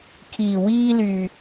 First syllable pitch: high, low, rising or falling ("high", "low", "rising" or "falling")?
low